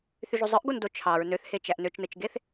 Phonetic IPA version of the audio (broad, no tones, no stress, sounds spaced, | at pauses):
θ y ʒ u zˤ ɯ ʔ ɡ o n d o t͡ʃʰ ɑ ɹ n ø θ h e t͡ʃ æ ʔ n ø t͡ʃ n ɯ t͡ʃ ɡ e θ